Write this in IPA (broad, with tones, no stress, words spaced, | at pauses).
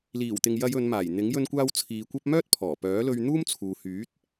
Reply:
liː˨˩wt̪ɪ˨ŋjɐ˨˧j ɵ˨˧nmaː˨˩jn̪ɪ˨˥ŋ jɵ˧nkʷaː˧w t͡sʰiː˨˧kʷɐ˥p̚ mœː˥t̚pʰɔː˨˩pœː˨˥lɵ˧ɥ n̪uː˥mt͡sʰuː˨hyː˨˥t̚